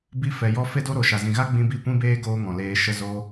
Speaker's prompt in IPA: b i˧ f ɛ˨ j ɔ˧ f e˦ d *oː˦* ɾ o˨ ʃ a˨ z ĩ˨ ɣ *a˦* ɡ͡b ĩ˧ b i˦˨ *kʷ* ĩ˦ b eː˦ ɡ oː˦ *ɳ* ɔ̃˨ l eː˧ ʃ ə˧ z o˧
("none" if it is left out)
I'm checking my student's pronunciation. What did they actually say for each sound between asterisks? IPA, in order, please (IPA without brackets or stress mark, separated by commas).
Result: o˦, a˦, kʷ, ŋ